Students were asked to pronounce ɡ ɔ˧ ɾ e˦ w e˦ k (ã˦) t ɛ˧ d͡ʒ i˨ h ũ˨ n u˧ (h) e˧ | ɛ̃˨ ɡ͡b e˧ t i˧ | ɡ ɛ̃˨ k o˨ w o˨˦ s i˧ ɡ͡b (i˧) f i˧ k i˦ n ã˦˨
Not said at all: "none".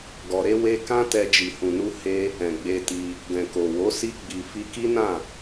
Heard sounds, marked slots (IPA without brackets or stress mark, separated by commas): ã˦, h, i˨